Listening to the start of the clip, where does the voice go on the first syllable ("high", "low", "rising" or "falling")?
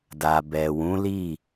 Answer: low